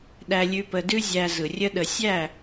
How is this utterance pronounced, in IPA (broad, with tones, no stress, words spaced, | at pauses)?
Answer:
ɗæ˧lʲʉ˧pə˧dʉ˦ zʲæ˧zɯ˨rʲə˦ɗə˧ sʲæ˦˨